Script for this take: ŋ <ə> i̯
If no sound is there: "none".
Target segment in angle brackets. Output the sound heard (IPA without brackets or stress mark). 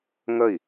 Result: ə